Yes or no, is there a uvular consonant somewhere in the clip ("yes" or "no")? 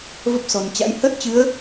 no